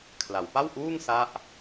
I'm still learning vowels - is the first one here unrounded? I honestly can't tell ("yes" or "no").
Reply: yes